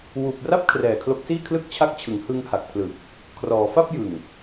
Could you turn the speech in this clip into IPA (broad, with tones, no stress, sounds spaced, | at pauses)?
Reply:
w uː˨˩ p̚ r a˥˩ p̚ kʰ r ɛː˨˩ kʰ l o˦˥ k̚ s iː˥˩ kʰ l ɯ˥˩ k̚ t͡ɕʰ a˦˥ k̚ t͡ɕʰ ɯ˩˦ ŋ h ɯ˧ ŋ h a˨˩ k̚ pʰ l ɯː˨˩ k̚ | kʰ r ɔː˩˦ f a˥˩ p̚ j ɯ˨˩ ŋ